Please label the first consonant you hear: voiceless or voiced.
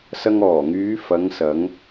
voiceless